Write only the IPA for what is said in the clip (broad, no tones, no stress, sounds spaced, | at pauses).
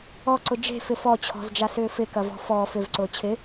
ɔ ǀ ʊ d͡ʒ e̤ f ɪ f ɔ t͡ɕʰ ɔ̤ z d͡ʒ a s ʏː f ɪ k ɐ v ɔ̤ f ɔ f ʏ v ǀ ʊː t͡ɕʰ ɪ